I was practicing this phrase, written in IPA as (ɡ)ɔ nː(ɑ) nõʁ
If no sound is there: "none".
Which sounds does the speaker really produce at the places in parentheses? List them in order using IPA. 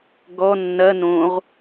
ɡ, ɐ

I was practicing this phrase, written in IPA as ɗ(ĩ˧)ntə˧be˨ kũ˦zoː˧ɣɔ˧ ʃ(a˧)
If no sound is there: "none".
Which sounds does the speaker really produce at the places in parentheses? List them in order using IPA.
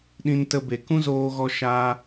ĩ˧, a˧

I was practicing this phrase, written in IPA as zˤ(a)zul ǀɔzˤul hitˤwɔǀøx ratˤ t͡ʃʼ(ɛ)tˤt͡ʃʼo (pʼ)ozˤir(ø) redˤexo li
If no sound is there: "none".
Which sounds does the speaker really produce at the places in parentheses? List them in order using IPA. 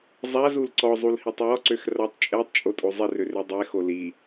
a, ɛ, tʼ, ø

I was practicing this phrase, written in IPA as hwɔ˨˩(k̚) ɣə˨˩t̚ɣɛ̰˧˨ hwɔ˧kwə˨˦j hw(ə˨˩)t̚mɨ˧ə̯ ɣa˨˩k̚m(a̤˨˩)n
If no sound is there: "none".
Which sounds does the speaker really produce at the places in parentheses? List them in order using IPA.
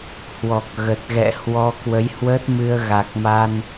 k̚, ə˦˥, a˧

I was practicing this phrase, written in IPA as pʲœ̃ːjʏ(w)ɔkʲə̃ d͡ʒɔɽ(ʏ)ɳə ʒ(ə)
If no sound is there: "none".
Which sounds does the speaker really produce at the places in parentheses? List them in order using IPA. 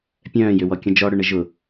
w, ʏ, ʊ

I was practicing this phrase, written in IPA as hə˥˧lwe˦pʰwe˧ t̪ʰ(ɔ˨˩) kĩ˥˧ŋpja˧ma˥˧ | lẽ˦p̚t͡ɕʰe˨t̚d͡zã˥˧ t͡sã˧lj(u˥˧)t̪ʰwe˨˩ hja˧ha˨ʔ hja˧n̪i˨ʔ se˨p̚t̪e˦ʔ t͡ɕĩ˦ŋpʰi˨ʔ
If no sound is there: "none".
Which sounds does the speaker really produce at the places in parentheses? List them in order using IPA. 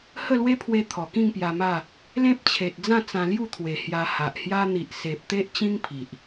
ɔ˨˩, u˥˧

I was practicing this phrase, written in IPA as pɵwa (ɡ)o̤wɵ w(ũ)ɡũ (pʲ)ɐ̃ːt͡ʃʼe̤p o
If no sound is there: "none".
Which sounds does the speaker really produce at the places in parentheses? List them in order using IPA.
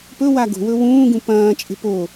ɡ, ũː, p

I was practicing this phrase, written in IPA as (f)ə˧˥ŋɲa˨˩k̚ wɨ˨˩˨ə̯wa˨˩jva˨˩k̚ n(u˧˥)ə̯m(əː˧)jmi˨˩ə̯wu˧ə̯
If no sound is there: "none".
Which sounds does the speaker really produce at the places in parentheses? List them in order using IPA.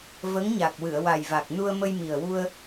v, u˧, ə˧

